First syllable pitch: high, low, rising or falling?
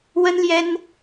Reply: high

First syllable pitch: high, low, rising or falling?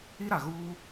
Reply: high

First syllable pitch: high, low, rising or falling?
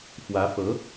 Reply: rising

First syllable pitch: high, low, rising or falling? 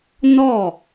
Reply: falling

